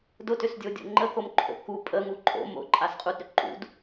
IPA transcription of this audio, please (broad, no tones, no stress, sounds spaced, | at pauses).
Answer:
d ʊ t ʏ s dʲ o dʲ o̰ ŋ͡ǃ ə k o m ǃʰ o̰ k u pʼ ə ŋ u ǃʼ o̰ m o̰ ǃʼ a s qʼ u d ɾ ʏ ǃ ṵ d